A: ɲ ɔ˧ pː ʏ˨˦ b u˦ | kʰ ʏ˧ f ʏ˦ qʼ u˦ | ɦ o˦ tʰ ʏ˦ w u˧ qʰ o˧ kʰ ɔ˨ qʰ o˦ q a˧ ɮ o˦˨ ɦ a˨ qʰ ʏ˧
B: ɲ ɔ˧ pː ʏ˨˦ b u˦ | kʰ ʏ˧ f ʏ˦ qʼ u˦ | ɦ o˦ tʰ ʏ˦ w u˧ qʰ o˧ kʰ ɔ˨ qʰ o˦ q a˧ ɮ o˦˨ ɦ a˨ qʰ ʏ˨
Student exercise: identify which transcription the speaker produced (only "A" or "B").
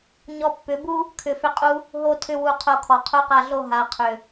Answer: B